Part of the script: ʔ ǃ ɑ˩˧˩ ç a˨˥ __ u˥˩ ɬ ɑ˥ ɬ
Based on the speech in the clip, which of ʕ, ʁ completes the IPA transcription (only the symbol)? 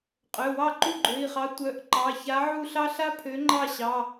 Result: ʕ